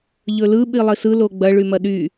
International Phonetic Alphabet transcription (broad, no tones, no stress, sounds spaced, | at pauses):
ʎ ɵ l ɯ ɓ i lˠ i s ɯ l o ɡ͡b ɐ ɭ y m ɐ ɗ y